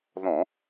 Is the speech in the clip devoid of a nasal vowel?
no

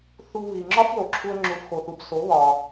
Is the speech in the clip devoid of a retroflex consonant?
yes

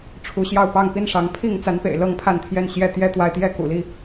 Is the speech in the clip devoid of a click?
yes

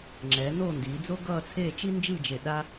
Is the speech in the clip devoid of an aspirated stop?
no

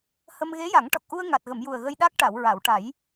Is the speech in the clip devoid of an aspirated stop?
yes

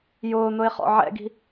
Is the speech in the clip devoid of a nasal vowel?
yes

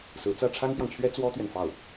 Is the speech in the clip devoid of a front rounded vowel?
yes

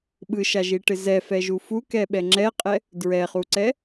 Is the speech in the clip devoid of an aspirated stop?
yes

